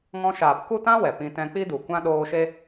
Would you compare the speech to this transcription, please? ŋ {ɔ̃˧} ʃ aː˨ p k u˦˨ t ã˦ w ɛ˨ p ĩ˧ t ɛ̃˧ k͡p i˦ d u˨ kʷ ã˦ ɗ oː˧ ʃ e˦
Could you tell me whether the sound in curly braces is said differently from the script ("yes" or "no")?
no